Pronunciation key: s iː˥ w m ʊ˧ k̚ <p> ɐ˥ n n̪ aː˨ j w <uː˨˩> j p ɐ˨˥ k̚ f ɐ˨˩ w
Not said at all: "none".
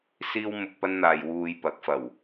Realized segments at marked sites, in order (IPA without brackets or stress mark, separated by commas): p, uː˧